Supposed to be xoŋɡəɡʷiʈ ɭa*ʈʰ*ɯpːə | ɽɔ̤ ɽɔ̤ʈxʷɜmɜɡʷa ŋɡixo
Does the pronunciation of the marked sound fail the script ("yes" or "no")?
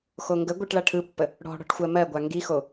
no